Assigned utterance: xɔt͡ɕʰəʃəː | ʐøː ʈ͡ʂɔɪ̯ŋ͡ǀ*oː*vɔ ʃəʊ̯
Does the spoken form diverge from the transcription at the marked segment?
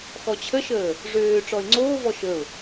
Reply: no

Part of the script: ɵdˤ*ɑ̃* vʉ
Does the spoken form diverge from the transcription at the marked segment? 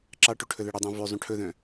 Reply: no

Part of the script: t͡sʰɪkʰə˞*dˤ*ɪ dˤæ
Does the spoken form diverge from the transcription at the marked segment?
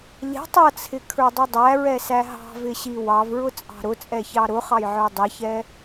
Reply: no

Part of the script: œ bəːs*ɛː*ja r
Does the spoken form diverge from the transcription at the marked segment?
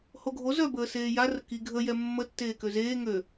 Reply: yes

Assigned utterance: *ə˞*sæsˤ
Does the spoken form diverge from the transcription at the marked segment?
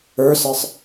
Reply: no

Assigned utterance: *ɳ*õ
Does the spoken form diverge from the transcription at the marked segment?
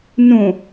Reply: yes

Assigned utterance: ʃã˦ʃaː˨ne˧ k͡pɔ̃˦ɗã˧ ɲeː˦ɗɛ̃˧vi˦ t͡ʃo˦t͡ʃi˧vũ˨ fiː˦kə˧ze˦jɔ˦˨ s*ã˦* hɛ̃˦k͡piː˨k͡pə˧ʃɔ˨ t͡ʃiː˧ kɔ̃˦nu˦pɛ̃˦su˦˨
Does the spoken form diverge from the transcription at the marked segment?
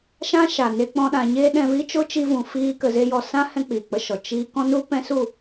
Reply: no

